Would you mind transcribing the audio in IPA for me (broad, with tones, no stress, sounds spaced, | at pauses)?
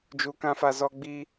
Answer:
d͡ʒ u˧ k ã˦ f a˧ z ɔ˦ ɡ͡b i˦